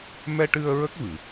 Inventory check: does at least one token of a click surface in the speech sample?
no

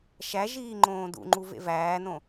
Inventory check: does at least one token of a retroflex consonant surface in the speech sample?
no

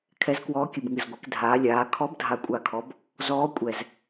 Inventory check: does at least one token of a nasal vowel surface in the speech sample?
no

